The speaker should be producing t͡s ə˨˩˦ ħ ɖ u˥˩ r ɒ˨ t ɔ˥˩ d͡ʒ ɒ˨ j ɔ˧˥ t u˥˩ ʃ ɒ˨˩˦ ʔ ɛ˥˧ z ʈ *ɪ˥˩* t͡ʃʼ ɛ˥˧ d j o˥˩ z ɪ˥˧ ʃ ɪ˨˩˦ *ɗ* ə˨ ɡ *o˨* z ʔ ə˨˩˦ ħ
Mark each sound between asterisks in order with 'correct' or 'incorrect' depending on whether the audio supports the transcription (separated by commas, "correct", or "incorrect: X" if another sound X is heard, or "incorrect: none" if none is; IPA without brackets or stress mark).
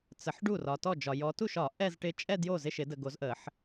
incorrect: ɪ˧˥, incorrect: d, incorrect: o˨˩˦